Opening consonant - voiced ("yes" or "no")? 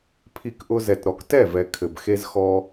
no